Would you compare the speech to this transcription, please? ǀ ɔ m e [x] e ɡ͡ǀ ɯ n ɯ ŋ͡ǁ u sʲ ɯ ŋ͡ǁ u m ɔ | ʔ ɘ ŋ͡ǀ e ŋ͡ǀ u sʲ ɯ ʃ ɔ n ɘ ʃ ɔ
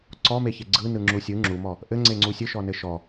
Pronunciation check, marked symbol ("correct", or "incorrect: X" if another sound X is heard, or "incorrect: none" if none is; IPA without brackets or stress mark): incorrect: ç